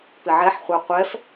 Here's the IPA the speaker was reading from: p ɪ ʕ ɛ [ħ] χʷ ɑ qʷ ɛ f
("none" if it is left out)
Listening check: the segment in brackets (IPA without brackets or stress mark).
ħ